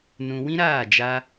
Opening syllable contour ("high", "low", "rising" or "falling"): low